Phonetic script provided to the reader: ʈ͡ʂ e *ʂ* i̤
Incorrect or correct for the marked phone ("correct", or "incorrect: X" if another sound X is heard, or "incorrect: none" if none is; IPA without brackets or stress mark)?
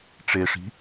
correct